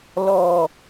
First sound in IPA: l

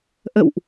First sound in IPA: ʔ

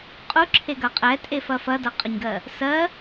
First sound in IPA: qʼ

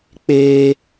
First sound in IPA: k͡p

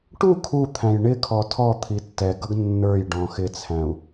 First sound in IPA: ʈ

